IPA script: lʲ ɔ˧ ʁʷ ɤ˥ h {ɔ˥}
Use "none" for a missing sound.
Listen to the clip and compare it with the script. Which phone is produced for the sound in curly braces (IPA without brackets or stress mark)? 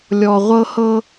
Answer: ɤ˥